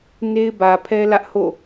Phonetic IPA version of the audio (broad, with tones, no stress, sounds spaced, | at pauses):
n e˦ ɪ̯ b ä˨ pʰ ɛ˦ l ä˦ ʔ h o̰˦˨